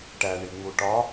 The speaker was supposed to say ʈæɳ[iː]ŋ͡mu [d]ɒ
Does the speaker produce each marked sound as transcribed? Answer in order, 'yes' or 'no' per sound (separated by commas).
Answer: no, no